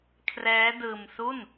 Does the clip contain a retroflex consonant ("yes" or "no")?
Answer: no